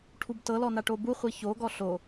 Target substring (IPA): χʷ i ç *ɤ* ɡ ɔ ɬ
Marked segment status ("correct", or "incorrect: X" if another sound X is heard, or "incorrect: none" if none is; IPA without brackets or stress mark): incorrect: o